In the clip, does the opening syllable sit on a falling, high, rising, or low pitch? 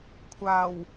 low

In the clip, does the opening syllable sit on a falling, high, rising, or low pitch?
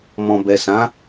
low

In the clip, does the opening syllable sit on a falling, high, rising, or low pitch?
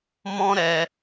high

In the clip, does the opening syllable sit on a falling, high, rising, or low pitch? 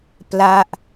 falling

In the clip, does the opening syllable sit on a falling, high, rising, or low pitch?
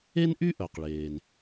high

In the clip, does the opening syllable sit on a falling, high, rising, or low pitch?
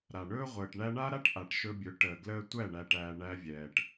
low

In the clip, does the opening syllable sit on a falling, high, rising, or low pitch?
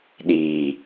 low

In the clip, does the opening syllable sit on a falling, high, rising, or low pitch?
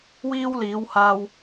high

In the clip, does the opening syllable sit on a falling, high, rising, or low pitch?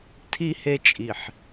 low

